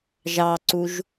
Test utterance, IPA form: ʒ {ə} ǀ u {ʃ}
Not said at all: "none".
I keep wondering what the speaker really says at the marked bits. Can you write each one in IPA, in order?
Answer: ɑ, ʒ

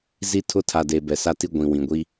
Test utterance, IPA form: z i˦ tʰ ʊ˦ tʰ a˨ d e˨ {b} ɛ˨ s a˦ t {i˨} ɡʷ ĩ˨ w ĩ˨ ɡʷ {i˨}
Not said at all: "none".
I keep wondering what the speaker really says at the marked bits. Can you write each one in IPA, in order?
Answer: b, i˦, i˦

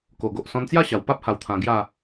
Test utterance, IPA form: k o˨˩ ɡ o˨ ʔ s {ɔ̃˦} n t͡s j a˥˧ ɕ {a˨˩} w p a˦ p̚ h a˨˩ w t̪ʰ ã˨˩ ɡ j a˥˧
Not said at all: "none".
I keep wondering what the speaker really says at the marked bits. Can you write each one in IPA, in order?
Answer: ɔ̃˧, a˨˩

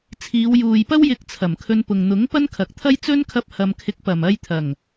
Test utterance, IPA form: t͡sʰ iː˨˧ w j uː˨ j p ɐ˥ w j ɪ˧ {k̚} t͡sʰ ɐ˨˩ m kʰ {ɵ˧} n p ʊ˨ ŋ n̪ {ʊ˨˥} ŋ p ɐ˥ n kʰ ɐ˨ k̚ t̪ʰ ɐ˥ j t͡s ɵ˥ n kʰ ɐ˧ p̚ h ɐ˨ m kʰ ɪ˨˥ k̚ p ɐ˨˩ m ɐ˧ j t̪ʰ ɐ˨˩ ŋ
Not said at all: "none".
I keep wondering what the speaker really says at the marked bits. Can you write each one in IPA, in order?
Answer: k̚, ɵ˧, ʊ˨˥

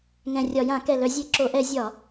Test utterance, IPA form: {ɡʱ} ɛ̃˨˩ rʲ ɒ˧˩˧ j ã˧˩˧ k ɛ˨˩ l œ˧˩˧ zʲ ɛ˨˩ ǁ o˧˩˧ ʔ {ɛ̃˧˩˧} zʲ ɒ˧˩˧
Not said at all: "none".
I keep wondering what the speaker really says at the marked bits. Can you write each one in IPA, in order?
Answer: ŋ, ɛ˧˩˧

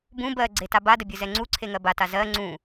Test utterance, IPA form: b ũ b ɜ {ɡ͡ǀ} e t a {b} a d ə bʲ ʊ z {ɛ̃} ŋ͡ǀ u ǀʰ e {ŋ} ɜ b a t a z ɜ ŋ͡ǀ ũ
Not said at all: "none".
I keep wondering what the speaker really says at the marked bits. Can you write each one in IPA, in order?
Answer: ɡ͡ǀ, b, ɛ, ŋ

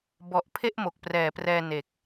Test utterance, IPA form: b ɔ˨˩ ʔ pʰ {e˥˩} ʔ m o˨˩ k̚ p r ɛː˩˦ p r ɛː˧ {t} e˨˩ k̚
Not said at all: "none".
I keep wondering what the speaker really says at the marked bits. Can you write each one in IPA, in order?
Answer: e˥˩, n

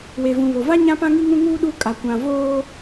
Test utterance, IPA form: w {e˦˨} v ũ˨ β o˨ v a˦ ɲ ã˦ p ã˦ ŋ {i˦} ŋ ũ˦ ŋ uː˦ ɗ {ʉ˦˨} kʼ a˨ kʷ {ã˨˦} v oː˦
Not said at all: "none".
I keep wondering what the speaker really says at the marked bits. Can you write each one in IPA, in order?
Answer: e˨, i˦, u˦˨, ã˨

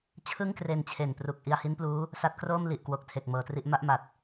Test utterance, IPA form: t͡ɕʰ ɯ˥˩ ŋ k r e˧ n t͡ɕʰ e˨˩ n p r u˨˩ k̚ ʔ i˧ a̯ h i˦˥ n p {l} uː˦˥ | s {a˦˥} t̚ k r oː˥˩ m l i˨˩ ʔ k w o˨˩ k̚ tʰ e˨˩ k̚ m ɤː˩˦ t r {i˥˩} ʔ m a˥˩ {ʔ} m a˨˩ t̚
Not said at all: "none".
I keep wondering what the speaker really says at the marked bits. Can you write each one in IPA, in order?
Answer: l, a˦˥, i˥˩, ʔ

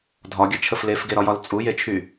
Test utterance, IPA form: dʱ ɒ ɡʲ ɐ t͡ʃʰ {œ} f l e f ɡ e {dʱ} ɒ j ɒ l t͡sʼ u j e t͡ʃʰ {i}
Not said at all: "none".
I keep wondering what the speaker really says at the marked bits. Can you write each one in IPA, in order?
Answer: ə, ɾ, y

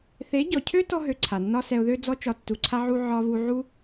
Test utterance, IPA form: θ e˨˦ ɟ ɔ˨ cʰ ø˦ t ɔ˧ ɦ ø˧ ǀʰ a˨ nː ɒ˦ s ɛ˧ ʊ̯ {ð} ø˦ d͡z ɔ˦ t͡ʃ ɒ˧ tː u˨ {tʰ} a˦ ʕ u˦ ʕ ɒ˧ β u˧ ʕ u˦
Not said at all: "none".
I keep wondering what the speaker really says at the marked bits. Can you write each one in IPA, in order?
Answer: ð, ǀʰ

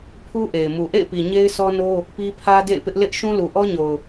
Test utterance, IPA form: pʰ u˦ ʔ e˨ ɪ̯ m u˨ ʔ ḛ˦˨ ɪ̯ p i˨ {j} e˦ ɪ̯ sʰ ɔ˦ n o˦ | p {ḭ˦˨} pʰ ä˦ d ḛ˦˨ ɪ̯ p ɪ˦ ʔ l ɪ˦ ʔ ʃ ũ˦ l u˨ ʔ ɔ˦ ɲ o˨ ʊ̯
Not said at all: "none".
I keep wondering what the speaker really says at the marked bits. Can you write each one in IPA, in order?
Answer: ɲ, i˦

